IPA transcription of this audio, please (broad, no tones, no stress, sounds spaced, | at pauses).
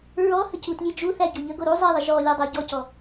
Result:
ɹ ɔ h ə c u t lʲ e d͡ʒ u θ æ ɟ o ʎ ə ɡ o ɾ u zˤ e ðˤ ə ʒ ɔ lʲ ɔ dˤ æ ɟ ɔ c ɔ